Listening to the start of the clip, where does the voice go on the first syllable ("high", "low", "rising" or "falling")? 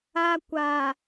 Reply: low